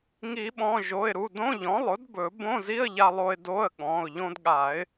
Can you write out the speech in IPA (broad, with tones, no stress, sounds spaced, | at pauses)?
ŋ i˨˩˦ ɓ ɔ̃˩˧˩ ʒ o˩˧˩ ɪ̯ ɾ u˩˧˩ d õ˧˥˧ ʎ ɔ̃˩˥ lˠ ʊ˩˥ d b ɵ˨˩˦ b õ˧˥˧ z i˧˥˧ ə̯ ʎ a˧ lˠ o˧ ɪ̯ d o˧˥˧ ə̯ ɠ ɔ̃˩˧˩ ʊ̯ ʎ õ˧ d ɠ a˨˩˦ ɪ̯